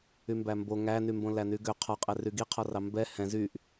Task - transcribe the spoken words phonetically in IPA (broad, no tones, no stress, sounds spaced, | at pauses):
y m b æ m b o ŋ æ n y m b õ l æ n y ɡ ø qʰ ɔ qʼ ɛ r y ɡ i qʰ ɔ r ɑ m b ɛ h ɛ̃ z y ʔ